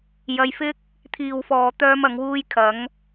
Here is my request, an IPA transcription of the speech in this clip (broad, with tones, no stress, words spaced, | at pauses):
jɐ˧jfɪ˥k̚ | t̪ʰiː˨wfɔː˨t̪œː˧m ɐ˨˧ŋ wuː˧jkʰɐ˨˧ŋ